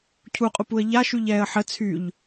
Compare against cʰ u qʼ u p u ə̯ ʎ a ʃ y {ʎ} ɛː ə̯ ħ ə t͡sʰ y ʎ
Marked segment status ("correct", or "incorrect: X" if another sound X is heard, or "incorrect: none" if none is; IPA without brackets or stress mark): correct